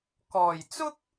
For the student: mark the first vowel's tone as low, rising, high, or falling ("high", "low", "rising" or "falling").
low